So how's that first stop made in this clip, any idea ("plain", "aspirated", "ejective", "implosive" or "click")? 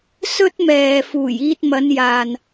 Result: plain